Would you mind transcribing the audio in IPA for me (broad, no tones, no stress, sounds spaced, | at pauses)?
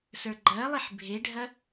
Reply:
s ə˞ ɡ͡ǃ ɐː lˠ i ħ bʱ e ɖʱ ɐ